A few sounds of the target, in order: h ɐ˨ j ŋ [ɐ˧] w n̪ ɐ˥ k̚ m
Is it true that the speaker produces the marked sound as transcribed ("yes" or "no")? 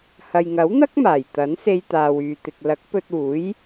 no